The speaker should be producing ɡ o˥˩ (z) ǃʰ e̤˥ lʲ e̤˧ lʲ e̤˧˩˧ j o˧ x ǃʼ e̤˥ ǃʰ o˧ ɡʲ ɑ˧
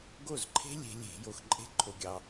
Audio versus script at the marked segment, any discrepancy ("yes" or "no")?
no